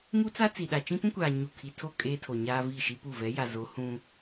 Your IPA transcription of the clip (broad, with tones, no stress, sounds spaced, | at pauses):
ŋ u˦ t͡s a˦ t͡s i˨ ɗ a˨ t͡ʃ ĩ˦ p ũ˦ kʷ aː˨ ɲ u˨ kʰ i˨ tʰ o˦˨ kʼ eː˦ tʰ o˨ ɲ aː˦ v i˦˨ ʃ i˦ p u˦˨ v ɛ˨˦ j a˨ z o˨˦ h ũ˦